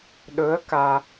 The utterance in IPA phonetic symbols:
ɗ ɵː˧˥ ə̯ k aː˧

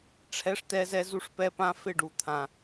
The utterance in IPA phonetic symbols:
ʈ͡ʂʰ ɛ˧ ʂ t ɛ˧ z ɛ˧ z u˧ ʂ p ɛ˧ p ã˧ f ɪ˦˨ ɖ u˨ t̪ʰ ã˨

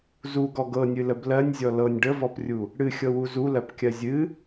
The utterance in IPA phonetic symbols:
z u ɡ ɔ ɡ ɤ nʲ ɨ l ə b l ɜ nʲ zʲ ɔ l ɤ nʲ ɖ ə v ɔ p rʲ u | ɽ ɨ xʲ ɤ w u z u l ɜ p kʲ ɜ zʲ ɨ

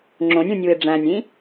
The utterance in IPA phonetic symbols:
ŋ͡ǁ õ nʲ ũ nʲ u ɪ̯ ɖ͡ʐ æ̃ nʲ ĩ

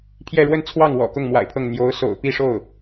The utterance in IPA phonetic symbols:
pʰ j ɛ˥˧ ɻ w ə˥˧ n t͡sʰ w ɑ˥˩ ŋ w ɔ̰˨˩ k ʊ˥˩ ŋ m w a̰˨˩ ɪ̯ pʰ ɤ˥˩ ŋ n̪ j o˧˥ ʊ̯ s o̰˨˩ ʊ̯ p i˥˧ ʂ o˥˩ ʊ̯

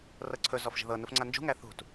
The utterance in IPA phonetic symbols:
r ɤ ǀʰ ɵ z ɔ f ʒ ə̤ ð ɤ n u f ŋ͡ǀ a n d͡ʒ ṳ ŋ æ θ ṳ t

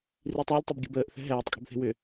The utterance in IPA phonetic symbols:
r i tˤ æ lʲ tˤ ʏ b ɡʲ ə̤ b əː ʔ θ ɛ̤ ɦ ɛː tˤ kʼ ə̤ b θ e̤ w ʏ

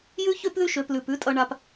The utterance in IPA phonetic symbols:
j ʉ˥ ç ø˥ p ð ʉ˥ ʃ ø˨ p l ʉ˩ p ʉ˦ tʼ ʌ˨ ɳ a˨ p

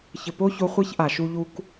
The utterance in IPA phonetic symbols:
ç ɘ˨ p o˦ ç o˧ χʷ e˦ ç ʔ a˨ ʃ u˧ ʎ u˧ k

